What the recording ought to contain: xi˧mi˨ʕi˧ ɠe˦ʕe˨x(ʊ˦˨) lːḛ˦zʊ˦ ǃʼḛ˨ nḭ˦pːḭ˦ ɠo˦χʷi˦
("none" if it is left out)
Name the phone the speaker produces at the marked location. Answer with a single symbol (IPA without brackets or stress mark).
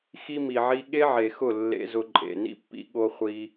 ʊ˦˨